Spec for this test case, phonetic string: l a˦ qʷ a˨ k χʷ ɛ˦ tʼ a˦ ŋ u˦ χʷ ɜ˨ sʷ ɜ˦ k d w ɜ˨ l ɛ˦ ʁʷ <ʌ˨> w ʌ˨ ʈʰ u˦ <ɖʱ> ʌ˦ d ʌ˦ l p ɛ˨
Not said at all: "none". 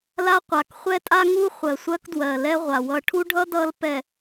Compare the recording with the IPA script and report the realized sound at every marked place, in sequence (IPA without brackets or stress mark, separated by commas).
a˨, ɖʱ